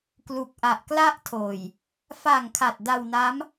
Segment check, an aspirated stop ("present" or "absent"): present